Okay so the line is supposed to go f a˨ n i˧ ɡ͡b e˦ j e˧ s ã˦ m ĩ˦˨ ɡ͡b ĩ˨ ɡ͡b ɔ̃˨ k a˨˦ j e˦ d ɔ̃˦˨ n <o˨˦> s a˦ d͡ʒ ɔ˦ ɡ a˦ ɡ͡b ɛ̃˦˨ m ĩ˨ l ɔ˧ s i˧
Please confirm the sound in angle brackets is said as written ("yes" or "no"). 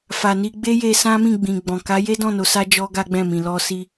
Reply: yes